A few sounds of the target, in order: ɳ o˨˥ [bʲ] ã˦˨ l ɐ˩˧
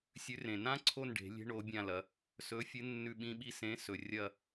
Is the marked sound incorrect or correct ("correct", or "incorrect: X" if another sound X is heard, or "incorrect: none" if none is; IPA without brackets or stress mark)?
correct